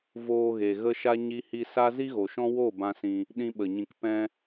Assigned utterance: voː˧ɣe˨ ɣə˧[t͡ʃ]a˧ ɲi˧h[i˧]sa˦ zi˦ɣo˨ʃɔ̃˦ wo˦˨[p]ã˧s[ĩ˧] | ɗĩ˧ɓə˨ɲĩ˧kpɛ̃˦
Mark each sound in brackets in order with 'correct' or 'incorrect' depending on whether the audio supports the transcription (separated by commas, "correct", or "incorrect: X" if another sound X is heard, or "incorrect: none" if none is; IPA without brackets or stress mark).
incorrect: ʃ, correct, incorrect: b, correct